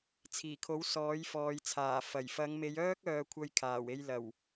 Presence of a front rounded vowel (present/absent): present